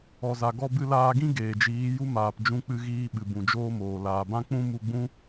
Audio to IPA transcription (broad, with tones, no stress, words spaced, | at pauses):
ɔ˨za˨ ɡɔ˧bɨ˧laː˧ɡĩ˦ ɡeː˨d͡ʒiː˨˦ju˦maː˨p d͡ʒũ˧k͡pɨ˧ɣiː˧ ɓɨ˨bũ˨d͡ʒoː˦moː˨ laː˨bã˦ k͡pũ˦mu˧ɡ͡bũ˦